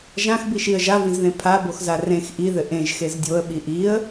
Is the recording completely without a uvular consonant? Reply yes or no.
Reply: yes